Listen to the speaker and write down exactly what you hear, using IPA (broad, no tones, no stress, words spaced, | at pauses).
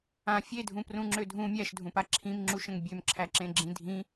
ã fʲedʱũprũŋ͡ǁø dʱũ mʲæʃdʱũpa ǁʰĩmŋ͡ǁuʃə̃ŋ bʲømǁʰæǁẽɡ͡ǁĩ dʱĩ